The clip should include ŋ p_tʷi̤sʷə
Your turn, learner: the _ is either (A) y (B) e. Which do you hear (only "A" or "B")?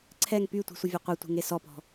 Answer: A